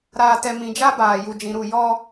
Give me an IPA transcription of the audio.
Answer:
ɾ aː˨ t ɛ˨ m ĩ˨ d͡ʒ a˦ b aː˨ j u˨ d͡ʒ ĩ˨ ɾ u˦˨ j ɔ˦

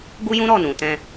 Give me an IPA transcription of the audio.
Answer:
ɡ u˦ j ũ˦ ɾ ɔ˦˨ n ũ˨ t ɛ̃˧

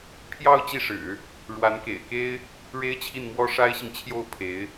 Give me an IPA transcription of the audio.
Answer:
pʰ j ɑ˥˧ ʊ̯ t͡ɕ i˥˩ ʂ ɻ̩˨˩˦ | ɻ w a˧˥ n k ḛ˨˩ ɪ̯ k e˥ ɪ̯ | ɻ e˥ ɪ̯ t͡ɕʰ i˥˩ n m w ɔ˥ ʂ a˥ ɪ̯ ɕ i˨ ŋ t͡ɕʰ j o˥˩ ʊ̯ pʰ e˧˥ ɪ̯

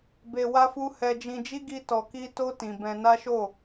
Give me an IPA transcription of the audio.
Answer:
b e˧ w a˦ f u˦ h ɛ˧ d͡ʒ ĩ˧ d͡ʒ i˦ ɡ i˦ t ɔ˧ k i˦ t o˦ t ĩ˧ b ɛ̃˧ n a˦ ʃ o˦˨

